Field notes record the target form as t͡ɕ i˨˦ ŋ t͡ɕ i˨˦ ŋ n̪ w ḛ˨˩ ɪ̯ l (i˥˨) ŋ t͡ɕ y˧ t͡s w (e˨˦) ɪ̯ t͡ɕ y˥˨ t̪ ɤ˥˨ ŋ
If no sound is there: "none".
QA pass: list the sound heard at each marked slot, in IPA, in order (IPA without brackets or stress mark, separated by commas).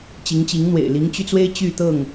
i˨˦, e˦